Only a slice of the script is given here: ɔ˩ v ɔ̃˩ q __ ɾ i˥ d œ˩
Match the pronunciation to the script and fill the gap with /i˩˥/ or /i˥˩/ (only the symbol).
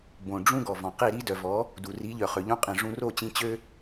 i˥˩